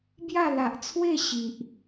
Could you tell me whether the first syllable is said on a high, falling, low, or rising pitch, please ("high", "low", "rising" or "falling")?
falling